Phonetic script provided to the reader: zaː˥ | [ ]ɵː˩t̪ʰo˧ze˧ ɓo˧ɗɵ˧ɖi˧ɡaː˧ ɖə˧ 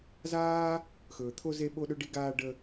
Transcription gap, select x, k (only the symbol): x